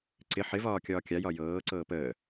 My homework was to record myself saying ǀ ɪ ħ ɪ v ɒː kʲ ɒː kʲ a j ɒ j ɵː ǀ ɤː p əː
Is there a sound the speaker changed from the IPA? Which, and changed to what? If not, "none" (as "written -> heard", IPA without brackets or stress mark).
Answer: ɵː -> ɤː